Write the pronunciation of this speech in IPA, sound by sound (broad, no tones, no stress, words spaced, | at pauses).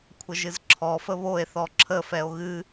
kʷʰəʒɨzǁʰɔfə βoe̯θɔ ǁʰəfɛo̯ ɣɨ